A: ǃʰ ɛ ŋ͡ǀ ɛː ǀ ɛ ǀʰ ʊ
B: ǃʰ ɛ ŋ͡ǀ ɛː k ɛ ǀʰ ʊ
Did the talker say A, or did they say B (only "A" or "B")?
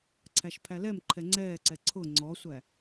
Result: A